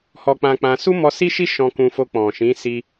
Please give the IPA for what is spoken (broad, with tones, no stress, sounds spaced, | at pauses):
h ɔ˧ k͡p ã˧ k͡p ã˧ s u˦ m ɔ˧ s i˦ ʃ i˦ ʃ ɔ̃˧ k ũ˧ f o˧ k͡p ɔ̃˨ ʃ ĩ˨˦ s i˧